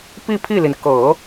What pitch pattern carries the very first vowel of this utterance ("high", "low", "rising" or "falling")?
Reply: falling